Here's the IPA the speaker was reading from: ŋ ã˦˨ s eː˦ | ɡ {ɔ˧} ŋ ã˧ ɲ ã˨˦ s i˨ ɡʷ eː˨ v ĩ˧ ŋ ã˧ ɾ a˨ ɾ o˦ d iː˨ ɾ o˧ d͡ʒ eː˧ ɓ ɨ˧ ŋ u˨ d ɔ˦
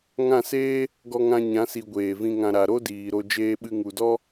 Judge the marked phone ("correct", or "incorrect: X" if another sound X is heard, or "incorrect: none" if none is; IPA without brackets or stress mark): correct